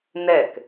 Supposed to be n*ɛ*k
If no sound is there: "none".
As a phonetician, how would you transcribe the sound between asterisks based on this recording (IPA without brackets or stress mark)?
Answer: ɛ